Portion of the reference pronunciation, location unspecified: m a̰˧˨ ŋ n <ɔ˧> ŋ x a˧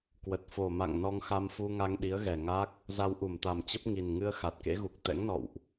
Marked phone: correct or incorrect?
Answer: correct